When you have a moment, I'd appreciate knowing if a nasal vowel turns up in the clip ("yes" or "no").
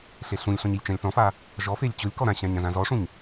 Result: yes